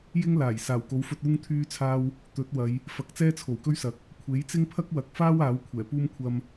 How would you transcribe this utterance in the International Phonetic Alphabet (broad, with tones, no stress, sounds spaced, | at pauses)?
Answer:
j ɪ˥ ŋ l aː˨˩ j s aː˨˩ w k o˨˥ w f ɵ˧ t̚ uː˥ ŋ t̪ʰ yː˥ t͡sʰ aː˥ w | t̪ ɵ˨˥ t̚ w ɐ˨˧ j | f ɐ˨˥ k̚ t͡s ɛː˥ t͡sʰ o˨˩ w k ɵ˥ ɥ s ɐ˨˥ k̚ | kʷʰ e˨˥ j t͡s ɪ˥ ŋ pʰ ɐ˥ k̚ w ɐ˨ k̚ f aː˥ w aː˨˥ w kʷʰ ɛː˨˩ p uː˥ m kʷʰ ɐ˧ m